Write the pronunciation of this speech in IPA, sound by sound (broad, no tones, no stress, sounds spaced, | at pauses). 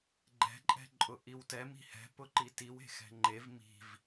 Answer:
ɡ͡ǃ ɛ̤ ǃʼ ɛ̤ ǃʼ ʊ ʔ i w t ɛ m i̤ h ɛ̤ p ʊ ǃ i t i w e̤ x ɛ̤ ŋ͡ǃ e v m i̤ v